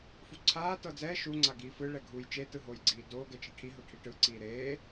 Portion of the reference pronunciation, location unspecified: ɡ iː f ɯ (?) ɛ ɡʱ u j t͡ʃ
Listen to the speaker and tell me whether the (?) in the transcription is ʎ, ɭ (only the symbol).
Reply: ɭ